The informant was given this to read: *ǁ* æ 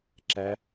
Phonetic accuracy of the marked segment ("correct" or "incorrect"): correct